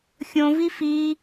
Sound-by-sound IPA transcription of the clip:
xʲ õ v i f i

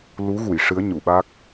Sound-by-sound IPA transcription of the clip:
l u˧˥ ɣ u˨˩˨ j ʂ ɨ˧˥ ə̯ ɲ u˨˩˨ ɓ a˦˥ k̚

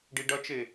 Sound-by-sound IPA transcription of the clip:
ɖ i ɖ ɐ t͡ʃ e

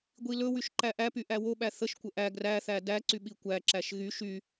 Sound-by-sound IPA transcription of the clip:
ɡʷ i l ɵ w y ʃ ǃ æ ʔ æ p y ʔ æ w o ɓ æ θ ə ʃ kʷ ə ʔ æ ɡ r æ θ æ d æ ǀ y ɓ i kʷ æ ǁ æ ʃ ɣ y ʃ y

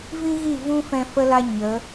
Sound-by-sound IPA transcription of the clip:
v ĩ˦ ɣ i˦˨ v ũ˦ f ɛ̃˧ f ə˦ l a˦ ɲ ə˨˦

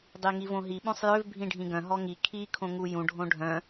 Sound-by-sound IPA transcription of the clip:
dˤ i ŋ i v õ ɦ i ɓ õ sˤ j ø v bʱ ĩ ɖʱ ĩ ɡ œ̃ ɦ ɔ ŋ i kʰ i kʰ õ ŋ u j ũ ɖʱ õ ɖʱ œ̃

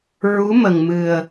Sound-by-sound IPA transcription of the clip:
ɹ u˧˥ m ə˨˩ ŋ m ɨ˨˩ ə̯

